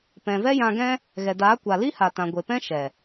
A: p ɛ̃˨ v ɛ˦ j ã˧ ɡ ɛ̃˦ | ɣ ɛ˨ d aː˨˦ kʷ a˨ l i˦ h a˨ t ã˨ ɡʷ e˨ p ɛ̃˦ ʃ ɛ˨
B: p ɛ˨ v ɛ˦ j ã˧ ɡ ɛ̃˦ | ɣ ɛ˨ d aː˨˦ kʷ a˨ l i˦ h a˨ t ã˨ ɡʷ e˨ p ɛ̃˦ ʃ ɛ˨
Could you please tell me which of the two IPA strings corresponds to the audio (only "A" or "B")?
A